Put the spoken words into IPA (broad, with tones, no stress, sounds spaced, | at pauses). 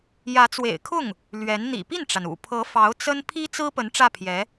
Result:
j ä˧˥ t͡s w ḛ˨˩ ɪ̯ kʰ ʊ˥˩ ŋ | l ɥ ɛ˧˥ n n̪ ḭ˨˩ p i˥˩ n ʈ͡ʂ a˩ n ṵ˨˩ pʰ ɤ˧˥ f ɑ˧˥ ʊ̯ t͡s ə˥ n pʰ i˥ t͡s ɹ̩˥ p ə˧˥ n ʈ͡ʂ ä˥˩ pʰ j ɛ˧˥